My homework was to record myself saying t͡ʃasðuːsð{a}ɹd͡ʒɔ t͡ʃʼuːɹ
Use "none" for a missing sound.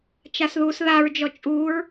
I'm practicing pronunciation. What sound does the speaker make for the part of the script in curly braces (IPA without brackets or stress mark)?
a